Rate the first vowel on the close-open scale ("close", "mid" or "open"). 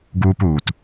close